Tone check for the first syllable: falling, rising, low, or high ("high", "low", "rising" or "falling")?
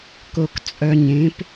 low